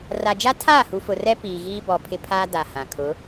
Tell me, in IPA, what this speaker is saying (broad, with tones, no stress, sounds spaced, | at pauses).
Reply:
r a˨ d͡ʒ a˦ tʰ aː˦˨ h u˨ f ʊ˨ r ɛ˦ p iː˨ ɣ iː˦ b ɔ˨ pʰ ɪ˦ pʰ aː˦ d a˨ h ã˨ kʰ ʊ˨˦